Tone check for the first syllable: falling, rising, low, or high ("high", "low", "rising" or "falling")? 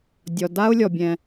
low